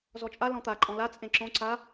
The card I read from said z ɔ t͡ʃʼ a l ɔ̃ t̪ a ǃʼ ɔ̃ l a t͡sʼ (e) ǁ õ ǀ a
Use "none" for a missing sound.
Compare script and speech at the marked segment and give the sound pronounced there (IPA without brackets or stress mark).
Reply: ẽ